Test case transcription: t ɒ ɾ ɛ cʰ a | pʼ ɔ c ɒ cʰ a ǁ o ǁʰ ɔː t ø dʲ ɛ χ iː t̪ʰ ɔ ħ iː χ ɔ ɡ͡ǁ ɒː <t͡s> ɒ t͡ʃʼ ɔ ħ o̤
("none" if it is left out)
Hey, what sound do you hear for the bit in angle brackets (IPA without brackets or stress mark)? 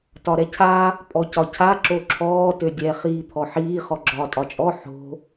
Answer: tʼ